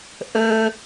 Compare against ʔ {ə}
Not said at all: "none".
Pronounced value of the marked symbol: ə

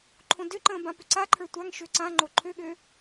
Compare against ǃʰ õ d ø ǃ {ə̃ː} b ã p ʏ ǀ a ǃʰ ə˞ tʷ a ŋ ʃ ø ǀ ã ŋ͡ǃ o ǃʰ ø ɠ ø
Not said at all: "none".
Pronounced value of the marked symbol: ə̃ː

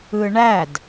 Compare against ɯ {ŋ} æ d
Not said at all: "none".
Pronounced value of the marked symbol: ɳ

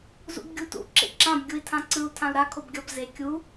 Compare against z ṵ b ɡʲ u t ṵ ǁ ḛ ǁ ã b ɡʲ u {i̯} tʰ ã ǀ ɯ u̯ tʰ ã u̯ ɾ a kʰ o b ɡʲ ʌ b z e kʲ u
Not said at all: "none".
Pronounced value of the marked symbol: i̯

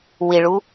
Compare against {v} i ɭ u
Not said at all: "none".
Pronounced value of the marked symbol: w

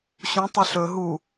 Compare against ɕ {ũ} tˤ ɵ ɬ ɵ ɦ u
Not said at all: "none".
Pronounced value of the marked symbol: ũ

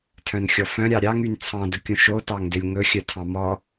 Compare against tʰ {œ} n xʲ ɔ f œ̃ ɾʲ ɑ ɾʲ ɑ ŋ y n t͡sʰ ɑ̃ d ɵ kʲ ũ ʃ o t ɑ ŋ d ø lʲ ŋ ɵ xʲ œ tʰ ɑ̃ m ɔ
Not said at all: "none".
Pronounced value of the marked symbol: œ̃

